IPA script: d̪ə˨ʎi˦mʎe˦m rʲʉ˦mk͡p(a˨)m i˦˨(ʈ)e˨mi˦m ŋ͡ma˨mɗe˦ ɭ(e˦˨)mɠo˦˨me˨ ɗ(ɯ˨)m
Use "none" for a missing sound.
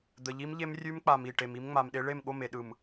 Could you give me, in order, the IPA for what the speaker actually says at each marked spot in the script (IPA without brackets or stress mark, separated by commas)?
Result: a˨, ʈ, e˦˨, ɯ˨